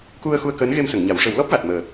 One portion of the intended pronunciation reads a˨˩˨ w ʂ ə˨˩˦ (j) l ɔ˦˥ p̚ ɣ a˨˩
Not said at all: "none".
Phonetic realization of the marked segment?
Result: w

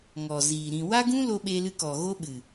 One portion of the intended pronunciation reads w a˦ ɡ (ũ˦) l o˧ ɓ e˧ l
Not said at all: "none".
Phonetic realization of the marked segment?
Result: ũ˦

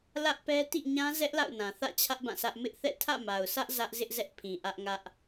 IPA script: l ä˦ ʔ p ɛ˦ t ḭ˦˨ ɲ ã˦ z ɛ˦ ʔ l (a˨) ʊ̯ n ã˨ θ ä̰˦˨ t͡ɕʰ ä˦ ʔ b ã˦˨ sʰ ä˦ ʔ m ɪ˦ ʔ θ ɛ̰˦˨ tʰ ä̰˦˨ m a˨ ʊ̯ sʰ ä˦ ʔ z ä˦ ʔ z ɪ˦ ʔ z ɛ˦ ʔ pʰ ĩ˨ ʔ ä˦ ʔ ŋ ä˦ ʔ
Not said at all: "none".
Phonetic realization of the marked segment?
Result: a̰˦˨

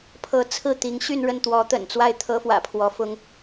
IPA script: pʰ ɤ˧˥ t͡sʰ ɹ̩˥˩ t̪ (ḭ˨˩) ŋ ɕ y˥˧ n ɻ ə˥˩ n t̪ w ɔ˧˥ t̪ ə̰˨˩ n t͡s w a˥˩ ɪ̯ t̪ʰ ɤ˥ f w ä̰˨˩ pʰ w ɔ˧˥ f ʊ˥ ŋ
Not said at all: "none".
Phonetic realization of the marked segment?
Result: i˧˥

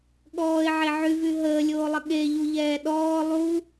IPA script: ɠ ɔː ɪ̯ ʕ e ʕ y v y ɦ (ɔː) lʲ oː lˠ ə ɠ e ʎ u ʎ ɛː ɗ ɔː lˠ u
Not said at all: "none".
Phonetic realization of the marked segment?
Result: əː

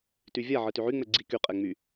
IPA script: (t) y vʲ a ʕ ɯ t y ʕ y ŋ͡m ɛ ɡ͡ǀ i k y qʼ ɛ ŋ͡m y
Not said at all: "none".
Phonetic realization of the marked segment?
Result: t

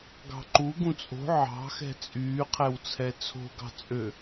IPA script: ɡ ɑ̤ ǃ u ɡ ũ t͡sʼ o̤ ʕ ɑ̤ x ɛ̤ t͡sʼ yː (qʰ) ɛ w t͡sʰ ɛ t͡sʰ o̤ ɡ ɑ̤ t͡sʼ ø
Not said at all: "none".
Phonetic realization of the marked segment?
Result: qʰ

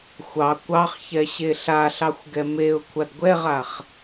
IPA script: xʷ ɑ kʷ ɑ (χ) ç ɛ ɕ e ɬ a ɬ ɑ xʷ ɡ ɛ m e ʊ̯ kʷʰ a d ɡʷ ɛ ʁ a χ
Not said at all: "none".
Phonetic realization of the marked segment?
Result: χ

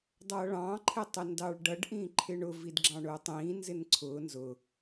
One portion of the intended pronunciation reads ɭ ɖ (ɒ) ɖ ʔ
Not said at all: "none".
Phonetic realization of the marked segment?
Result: ʌ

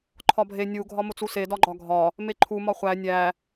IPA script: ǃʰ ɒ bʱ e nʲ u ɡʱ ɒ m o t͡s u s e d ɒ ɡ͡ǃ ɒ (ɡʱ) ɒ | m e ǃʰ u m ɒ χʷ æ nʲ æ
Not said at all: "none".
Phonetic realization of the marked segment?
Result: ɡʱ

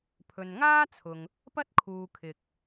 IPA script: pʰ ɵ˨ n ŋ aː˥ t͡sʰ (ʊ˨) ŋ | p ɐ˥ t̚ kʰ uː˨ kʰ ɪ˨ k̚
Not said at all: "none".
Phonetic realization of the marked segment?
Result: ʊ˨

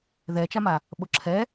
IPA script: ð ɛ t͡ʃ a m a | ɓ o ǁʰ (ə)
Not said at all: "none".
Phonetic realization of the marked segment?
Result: ɛ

